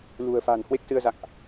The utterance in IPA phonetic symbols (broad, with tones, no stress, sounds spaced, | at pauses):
l ṳ˨˩ ə̯ f a̤˨˩ n h w e˦˥ k̚ s ɨ˧ ə̯ z a̰˧˨ ŋ ʔ